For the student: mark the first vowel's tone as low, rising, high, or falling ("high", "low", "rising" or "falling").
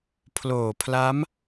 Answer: low